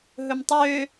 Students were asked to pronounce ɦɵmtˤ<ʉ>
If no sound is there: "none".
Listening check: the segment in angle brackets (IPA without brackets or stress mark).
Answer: ø